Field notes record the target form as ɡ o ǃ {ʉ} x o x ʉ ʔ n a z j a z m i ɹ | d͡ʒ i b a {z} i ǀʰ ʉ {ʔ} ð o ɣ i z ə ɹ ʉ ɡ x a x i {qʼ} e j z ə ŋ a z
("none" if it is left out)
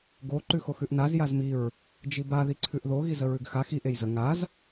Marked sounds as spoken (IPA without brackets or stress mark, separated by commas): ʉ, ð, ʔ, ʔ